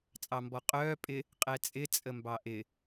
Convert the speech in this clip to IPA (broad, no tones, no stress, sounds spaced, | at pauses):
t͡sʼ ɑ m b ɔ qʼ œː pʼ ɪ | qʼ ɛ t͡sʼ ɪ t͡sʼ ə m b ɑ ʔ ɪ